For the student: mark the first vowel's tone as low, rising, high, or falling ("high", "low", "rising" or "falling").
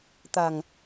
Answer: low